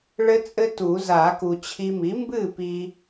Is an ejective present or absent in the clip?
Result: present